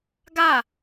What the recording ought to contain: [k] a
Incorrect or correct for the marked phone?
incorrect: ɡ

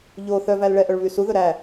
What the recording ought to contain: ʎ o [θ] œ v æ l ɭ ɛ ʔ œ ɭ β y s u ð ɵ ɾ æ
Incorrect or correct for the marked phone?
correct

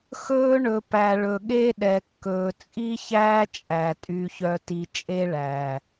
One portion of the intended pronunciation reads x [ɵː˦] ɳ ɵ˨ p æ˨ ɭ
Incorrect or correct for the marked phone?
correct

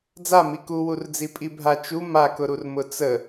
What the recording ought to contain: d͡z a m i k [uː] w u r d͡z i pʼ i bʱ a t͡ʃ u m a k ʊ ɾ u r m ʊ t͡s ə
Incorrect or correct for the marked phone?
incorrect: u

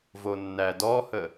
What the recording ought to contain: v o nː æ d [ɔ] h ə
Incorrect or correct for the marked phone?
correct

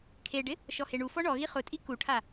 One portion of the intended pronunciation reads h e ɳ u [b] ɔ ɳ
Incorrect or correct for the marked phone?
incorrect: f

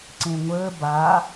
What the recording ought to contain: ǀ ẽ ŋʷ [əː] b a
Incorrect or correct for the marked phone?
correct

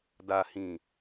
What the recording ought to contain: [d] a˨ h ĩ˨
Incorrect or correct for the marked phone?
correct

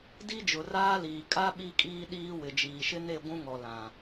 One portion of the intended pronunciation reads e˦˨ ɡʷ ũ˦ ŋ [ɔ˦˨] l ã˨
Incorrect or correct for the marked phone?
incorrect: ɔ˨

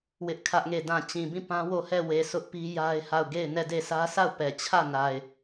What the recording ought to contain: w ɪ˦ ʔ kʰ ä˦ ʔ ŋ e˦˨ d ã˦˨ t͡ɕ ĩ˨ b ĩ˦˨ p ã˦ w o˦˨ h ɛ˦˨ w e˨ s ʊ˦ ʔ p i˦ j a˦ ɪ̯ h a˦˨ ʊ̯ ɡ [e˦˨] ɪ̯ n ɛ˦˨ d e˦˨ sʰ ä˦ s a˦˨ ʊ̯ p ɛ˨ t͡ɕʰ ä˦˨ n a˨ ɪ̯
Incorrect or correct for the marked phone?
correct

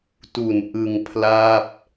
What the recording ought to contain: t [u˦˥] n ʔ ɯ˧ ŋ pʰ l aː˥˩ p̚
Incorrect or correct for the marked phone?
incorrect: u˨˩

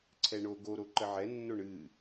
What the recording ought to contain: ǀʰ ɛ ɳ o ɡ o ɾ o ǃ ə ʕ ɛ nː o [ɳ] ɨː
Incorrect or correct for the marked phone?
correct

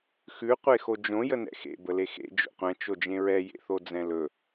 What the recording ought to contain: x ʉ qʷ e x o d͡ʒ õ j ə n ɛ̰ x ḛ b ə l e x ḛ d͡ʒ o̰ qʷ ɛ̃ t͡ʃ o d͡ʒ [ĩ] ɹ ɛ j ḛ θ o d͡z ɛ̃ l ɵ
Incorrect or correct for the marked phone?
incorrect: ẽ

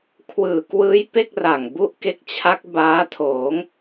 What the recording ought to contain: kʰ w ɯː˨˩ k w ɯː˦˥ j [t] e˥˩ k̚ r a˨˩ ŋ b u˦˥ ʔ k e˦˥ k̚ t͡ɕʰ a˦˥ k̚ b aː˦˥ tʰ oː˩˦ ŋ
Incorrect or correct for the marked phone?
incorrect: p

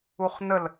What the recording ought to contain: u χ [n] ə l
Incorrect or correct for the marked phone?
correct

